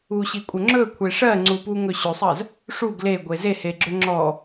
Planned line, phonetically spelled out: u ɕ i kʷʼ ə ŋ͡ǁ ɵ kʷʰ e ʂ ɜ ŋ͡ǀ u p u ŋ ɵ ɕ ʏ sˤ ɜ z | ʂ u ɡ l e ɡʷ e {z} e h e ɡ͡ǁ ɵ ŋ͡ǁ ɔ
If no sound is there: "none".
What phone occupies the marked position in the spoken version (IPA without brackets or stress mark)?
z